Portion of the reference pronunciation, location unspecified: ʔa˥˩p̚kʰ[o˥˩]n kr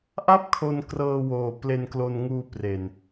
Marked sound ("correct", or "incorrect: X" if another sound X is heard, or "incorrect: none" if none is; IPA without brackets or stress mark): incorrect: o˧